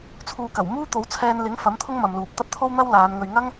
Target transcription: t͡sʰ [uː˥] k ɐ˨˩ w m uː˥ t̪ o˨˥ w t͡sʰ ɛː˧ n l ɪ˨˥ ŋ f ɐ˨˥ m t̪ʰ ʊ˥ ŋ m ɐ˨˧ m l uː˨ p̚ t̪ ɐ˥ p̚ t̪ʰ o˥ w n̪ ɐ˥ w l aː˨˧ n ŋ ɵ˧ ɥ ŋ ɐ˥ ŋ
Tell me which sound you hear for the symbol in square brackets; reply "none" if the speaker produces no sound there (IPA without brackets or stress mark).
uː˨